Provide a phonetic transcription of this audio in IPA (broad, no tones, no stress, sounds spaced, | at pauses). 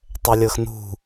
tˤ ɛ lʲ ɤ x n ṳ